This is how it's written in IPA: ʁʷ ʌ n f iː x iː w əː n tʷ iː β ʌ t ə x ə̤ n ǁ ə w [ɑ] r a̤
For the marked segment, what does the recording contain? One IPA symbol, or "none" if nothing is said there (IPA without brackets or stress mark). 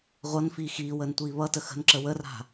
ə